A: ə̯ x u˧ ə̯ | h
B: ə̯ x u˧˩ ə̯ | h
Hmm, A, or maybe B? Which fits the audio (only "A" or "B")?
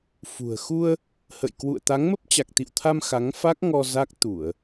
A